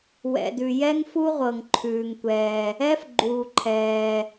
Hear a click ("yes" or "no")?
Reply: yes